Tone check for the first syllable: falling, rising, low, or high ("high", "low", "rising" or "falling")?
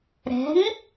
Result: rising